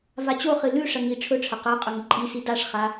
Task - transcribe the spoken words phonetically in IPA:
v a t͡ɕ o χ ɨ l ʉ ʂ ɐ ŋ i ʈ͡ʂʰ ɵ ʈ͡ʂʰ ɐ q a qʼ ɵ ŋ i ǃʼ i s i d a ʂ χ a

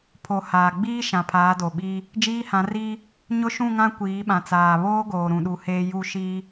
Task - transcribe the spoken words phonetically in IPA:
pʰ o˨ h aː˨ ɡ͡b iː˦ ʃ ã˨ pʰ aː˨˦ d o˨ ɓ iː˦ | d͡ʒ iː˦ h ã˨˦ r iː˦ | ɲ ʊ˦ ʃ ũ˦˨ ŋ ã˦ kʷ iː˨˦ ɓ ã˨ t͡s aː˨ β oː˦ ɡ oː˨ ɾ ũ˨ ɗ u˨ h eː˨ j u˦˨ ʃ iː˦

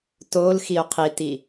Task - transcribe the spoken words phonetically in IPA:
t o l x i o̯ qʰ i t i

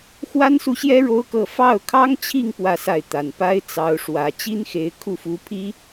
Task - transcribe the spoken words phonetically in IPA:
x w a˥ n s u˥˩ ɕ j ɛ˥ ɻ o˥ ʊ̯ k ɤ˥˧ f ɑ˥˩ ʊ̯ kʰ ɑ˥ ŋ t͡ɕʰ i˥˧ ŋ p w ä˥˧ s a˥˩ ɪ̯ t̪ a˧˥ n p a˥ ɪ̯ t͡s ɑ˧˥ ʊ̯ ʂ w ä˧˥ t͡ɕ i˥ n x e˧˥ ɪ̯ kʰ u˥˩ f u˧˥ pʰ i˥

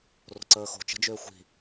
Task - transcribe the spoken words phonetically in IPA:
r o̤ ǀ əː x o̤ t͡ʃ ə̤ d͡ʒ ʏː xʷ i̤

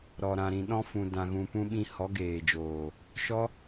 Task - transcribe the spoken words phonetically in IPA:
ɾ ɔ˨ ɾ ã˨ ɾ ĩ˨ ɗ ɔ̃˧ f ũ˨ d ã˨ ɣ ũ˨ p ũ˧ ɓ ĩ˧ h ɔ˨˦ ɡ eː˨ d͡ʒ oː˨ | ʃ ɔ˦

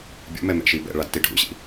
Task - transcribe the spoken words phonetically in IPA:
bʲ ṵ m ɛ m ɛ̰ ʃ i b ɛ̰ ɭ a d t i ɖʱ ṵ ɕ ḭ

